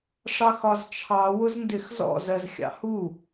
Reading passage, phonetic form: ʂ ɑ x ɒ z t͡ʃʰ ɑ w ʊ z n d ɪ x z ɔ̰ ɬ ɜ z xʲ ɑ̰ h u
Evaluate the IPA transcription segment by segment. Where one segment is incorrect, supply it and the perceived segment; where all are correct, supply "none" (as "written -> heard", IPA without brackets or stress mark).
ɬ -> z